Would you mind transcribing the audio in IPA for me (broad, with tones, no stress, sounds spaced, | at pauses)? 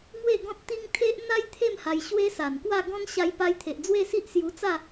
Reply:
ŋ w e˥˧ ɡ ɔ̃˦ t̚ t̪ i˦ ŋ t̪ʰ e˦ ʔ n̪ a˦ j t̪ʰ e˥˧ m h a˧ j ɕ w e˦ s a˨˩ n k w a˥˧ ɡ ɔ̃˦ n ɕ a˧ j p a˧ j t̪ʰ e˨ ʔ d͡z w e˥˧ s i˦ ʔ s j u˧ t͡s a˥˧